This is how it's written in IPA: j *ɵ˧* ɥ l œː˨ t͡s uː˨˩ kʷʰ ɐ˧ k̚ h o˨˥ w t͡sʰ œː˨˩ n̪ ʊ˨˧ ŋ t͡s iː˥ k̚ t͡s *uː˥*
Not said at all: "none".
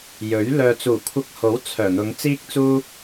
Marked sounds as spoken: ɵ˨˥, uː˥

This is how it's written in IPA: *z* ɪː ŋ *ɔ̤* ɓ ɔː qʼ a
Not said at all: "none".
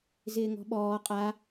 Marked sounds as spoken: z, ɔ̤

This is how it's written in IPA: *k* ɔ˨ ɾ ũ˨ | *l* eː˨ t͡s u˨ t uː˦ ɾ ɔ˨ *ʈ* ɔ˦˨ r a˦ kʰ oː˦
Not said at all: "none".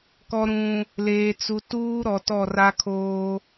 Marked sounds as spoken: k, l, t

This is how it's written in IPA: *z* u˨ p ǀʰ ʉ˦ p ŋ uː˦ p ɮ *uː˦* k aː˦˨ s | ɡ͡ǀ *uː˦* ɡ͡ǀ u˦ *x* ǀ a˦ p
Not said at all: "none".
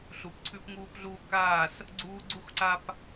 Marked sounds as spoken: ɬ, uː˦, uː˦, x

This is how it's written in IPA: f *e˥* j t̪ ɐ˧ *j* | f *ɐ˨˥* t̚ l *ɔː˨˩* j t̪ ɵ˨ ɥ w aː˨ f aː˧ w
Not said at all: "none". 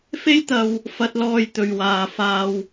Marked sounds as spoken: e˥, w, ɐ˧, ɔː˧

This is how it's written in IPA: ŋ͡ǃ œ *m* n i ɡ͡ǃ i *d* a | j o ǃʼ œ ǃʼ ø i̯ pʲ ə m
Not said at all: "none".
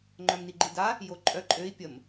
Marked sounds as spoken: m, d

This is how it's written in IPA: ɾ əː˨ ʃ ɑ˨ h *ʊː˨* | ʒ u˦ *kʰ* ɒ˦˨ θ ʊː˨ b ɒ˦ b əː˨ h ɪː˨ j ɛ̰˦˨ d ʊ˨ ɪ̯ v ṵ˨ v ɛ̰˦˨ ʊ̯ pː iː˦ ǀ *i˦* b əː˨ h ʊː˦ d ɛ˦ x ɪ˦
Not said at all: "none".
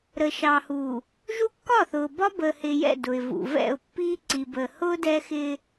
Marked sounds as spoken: uː˨, kː, i˨

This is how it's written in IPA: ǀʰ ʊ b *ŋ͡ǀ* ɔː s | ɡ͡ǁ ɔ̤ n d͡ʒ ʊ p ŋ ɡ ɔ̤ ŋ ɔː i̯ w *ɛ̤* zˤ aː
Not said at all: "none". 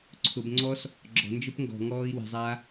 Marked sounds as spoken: ŋ͡ǀ, ɛ̤

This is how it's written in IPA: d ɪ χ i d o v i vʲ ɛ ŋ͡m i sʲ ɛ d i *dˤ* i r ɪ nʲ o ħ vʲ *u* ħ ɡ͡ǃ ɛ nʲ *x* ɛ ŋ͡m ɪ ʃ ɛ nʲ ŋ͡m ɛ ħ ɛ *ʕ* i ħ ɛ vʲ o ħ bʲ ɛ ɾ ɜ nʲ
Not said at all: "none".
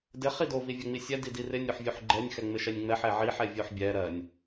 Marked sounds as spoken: d, u, x, ʕ

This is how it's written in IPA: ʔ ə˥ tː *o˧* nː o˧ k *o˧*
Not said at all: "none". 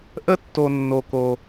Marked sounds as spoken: o˧, o˧

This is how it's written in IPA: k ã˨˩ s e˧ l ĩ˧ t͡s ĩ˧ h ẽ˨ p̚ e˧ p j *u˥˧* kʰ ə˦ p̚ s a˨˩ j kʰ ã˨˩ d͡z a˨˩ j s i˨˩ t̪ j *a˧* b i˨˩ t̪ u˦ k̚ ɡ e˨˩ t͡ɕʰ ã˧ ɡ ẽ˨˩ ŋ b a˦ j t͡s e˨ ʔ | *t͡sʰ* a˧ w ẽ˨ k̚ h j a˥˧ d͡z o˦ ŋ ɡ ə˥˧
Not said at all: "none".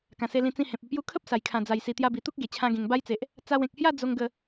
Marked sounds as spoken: u˦, a˧, t͡s

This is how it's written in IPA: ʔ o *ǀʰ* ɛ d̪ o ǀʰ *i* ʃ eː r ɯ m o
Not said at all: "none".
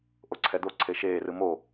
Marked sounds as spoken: ǀʰ, e

